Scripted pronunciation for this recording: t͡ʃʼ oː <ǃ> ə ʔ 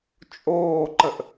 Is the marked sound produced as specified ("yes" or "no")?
yes